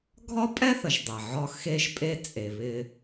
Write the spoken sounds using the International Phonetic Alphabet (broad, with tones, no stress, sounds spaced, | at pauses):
ɡʱ ɒ˥ pʼ ɛ˥ θ ə˩ ʒ dˤ ɛ˩ ʕ ɒ˧ x e˧ ʒ pʼ e˧ t͡sʼ e˩ β ɪ˧